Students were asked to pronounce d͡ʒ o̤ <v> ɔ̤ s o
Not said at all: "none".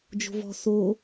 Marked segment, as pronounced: v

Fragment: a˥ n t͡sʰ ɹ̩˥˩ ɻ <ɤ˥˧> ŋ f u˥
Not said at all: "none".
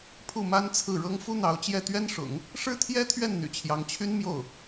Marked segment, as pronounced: ɤ˥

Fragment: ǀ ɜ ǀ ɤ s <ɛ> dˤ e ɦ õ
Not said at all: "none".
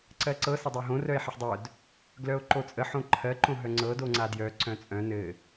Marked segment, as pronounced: ɘ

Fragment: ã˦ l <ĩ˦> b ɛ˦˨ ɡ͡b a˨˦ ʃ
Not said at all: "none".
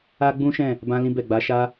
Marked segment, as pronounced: ĩ˦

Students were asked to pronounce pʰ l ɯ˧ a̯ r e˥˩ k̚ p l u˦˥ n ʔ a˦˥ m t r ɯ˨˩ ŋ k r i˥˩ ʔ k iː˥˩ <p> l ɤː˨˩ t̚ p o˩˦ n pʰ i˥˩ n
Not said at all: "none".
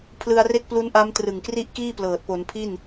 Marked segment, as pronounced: p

